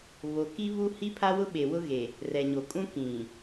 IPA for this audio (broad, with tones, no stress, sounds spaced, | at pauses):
β o˨ k i˦ β u˦ h i˦ pʰ a˦ w ʊ˦ ɓ e˨ w ʊ˦ ɣ e˨ | r ɛ˨ ɲ o˨ kʼ ũ˦ k ĩ˨